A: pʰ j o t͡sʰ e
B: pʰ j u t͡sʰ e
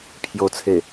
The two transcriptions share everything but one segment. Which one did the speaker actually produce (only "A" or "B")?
A